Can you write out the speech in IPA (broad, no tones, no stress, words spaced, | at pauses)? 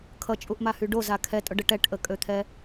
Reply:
kʰʌt͡ʃʼuʔmahy ɖoza kʰɛtʼʊɖə ʈɛʈʔəkʼøt̪ʰɛ